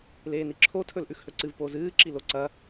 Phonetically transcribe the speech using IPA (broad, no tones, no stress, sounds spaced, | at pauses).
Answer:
l eː n i ǁʰ o tʰ ɵ l ʔ ʉ x h ɵ ǀ ɨ v p o z ɨː ǁ i l o ǀ ɐ